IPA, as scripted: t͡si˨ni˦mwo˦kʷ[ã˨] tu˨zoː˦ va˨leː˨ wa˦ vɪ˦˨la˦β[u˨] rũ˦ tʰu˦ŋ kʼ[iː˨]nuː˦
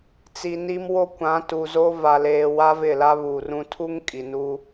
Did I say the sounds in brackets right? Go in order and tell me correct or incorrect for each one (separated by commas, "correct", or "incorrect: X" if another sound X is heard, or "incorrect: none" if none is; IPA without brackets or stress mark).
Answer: incorrect: ã˨˦, incorrect: uː˨, incorrect: i˨